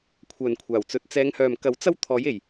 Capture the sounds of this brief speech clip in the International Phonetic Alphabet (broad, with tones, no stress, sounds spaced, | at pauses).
kʷʰ œː˨ n kʷʰ aː˨˩ w t͡s ɵ˨˥ t̚ t͡s ɛː˨˧ ŋ h œː˨ m k ɐ˨˥ w t͡s ɐ˥ w t̪ʰ ɔː˨˥ j e˨˩ j